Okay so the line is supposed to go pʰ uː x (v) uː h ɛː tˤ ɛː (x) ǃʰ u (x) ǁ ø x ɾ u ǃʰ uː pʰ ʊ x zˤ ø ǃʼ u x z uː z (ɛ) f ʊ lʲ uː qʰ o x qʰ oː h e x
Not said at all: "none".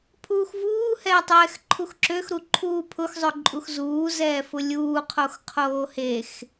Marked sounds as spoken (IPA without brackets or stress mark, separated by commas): v, x, x, ɛː